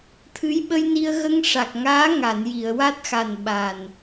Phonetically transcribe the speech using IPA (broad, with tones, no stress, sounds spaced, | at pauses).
t̪ʰ ɨ˧˥ j ɓ ə˧ j n i˧ ə̯ ɣ ə˧ ŋ ʂ a˨˩ k̚ ŋ aː˧˥ ŋ a˨˩˨ n j i˨˩˨ ə̯ w a˦˥ t̚ x a˨˩ n ɓ a˨˩ n